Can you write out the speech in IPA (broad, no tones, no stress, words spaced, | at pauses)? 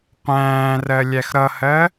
qʷæ̃ːrɜlʲæx ɾʌhɜ